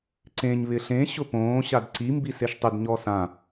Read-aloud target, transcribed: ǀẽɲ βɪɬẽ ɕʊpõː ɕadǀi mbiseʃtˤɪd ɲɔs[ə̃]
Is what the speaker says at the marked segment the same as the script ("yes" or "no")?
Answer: no